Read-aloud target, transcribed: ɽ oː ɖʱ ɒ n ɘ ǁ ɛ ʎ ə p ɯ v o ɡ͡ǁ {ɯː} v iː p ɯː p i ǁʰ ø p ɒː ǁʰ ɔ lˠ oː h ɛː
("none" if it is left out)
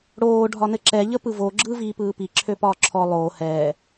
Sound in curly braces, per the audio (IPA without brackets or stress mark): ɯː